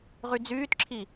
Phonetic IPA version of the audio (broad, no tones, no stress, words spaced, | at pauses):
ʁyd͡zyːtǁʰi